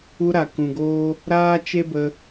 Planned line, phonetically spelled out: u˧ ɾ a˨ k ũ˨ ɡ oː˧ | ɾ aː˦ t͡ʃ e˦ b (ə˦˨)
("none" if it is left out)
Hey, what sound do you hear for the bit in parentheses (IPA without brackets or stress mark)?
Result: ə˧